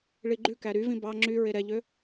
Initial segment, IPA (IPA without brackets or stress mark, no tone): ɭ